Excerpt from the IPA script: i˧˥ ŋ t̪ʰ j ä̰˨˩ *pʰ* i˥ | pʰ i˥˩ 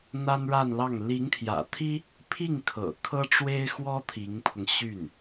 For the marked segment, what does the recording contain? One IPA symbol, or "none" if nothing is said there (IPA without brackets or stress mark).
t̪ʰ